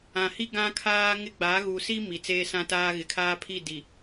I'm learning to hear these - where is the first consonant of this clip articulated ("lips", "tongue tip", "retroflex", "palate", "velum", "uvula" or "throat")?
throat